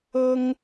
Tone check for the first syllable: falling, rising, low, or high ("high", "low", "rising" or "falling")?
high